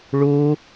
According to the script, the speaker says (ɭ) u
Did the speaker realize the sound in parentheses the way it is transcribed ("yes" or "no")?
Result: yes